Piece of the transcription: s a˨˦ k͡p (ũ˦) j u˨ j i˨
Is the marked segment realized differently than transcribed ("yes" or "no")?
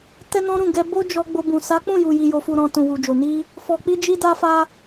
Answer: yes